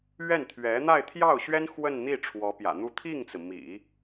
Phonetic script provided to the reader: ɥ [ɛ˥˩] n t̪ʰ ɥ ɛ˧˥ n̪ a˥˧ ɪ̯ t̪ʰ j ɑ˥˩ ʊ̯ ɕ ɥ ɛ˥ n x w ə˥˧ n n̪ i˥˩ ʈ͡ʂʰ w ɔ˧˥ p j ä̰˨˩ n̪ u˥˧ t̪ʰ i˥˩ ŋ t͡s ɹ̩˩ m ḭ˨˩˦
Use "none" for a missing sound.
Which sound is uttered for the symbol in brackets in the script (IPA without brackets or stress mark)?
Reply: ɛ˥˩